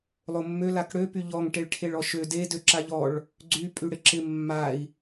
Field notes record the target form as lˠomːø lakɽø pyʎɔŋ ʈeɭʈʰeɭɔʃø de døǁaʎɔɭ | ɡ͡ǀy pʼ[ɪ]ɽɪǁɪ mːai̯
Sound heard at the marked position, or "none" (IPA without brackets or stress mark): y